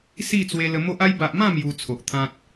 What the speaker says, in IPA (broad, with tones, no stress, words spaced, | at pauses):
si˥˧t͡swe˧lə˧ mo˦ʔa˦j ba˨ʔmã˥˧ mju˧t͡sʰo˨ʔt̪ʰã˦t̚